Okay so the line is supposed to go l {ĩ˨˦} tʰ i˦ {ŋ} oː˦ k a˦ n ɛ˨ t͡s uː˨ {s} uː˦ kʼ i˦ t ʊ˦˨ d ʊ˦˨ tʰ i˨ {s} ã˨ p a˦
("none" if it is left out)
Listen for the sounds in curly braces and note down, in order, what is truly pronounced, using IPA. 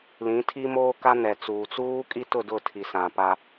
ĩ˨˦, m, t͡s, s

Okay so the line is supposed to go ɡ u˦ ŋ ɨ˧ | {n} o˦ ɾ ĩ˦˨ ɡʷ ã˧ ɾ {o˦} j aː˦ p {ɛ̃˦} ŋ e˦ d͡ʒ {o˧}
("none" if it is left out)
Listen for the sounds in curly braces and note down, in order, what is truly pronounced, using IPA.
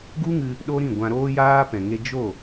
ɗ, oː˦, ɛ̃˨, o˦˨

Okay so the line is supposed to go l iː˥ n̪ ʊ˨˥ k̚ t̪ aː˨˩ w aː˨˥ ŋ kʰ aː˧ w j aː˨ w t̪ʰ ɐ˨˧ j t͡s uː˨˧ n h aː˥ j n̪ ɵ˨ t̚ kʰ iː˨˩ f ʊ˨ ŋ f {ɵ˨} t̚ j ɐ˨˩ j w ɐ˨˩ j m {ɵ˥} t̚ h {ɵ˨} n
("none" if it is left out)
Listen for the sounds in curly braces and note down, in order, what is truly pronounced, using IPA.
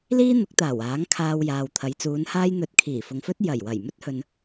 ɵ˥, ɵ˥, ɵ˨

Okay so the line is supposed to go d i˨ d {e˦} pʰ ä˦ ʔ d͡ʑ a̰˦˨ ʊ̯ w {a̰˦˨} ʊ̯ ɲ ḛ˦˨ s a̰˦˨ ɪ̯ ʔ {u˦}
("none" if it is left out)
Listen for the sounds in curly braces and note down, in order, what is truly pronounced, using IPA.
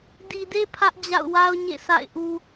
e˦, a˦, u˦

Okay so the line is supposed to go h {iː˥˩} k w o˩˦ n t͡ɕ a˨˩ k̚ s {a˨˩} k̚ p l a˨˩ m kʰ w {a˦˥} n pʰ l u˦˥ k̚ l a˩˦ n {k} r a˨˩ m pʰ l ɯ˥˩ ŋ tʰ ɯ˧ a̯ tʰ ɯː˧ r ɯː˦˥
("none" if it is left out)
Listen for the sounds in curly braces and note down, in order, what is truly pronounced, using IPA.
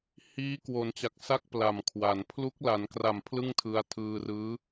iː˦˥, a˦˥, a˩˦, k

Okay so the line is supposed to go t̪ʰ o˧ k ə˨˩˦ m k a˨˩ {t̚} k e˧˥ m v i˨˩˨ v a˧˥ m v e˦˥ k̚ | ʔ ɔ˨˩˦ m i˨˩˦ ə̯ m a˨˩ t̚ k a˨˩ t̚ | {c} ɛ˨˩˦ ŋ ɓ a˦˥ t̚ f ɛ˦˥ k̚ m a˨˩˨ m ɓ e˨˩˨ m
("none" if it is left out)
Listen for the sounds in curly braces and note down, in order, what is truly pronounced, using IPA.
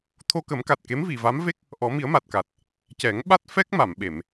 t̚, c

